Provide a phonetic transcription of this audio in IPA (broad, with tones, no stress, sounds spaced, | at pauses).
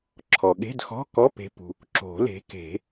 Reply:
ǁʰ ɔ˩ ɠ e̤˧˥˧ d x ɔ̤˧˥˧ k ɔ˧˥˧ p e̤˨˦ p ṳ˩ | ǁ o̤˨˩˦ l e̤˨˦ k e̤˨˩˦